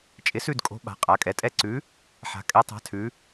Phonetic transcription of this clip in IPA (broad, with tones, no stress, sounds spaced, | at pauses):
t͡ʃʼ ɪ˨˥ s ʉ˦˨ d kʼ o̤˨˥ ɓ a̤˩˧ qʼ a˩˧ kʼ ɛ˩˧ tʼ ɛ˦˨ ǀ ʉ˨˥ | ħ a̤˩˧ kʼ ɛ˨˥ tˤ a̤˨˥ tʰ ʉ˩˧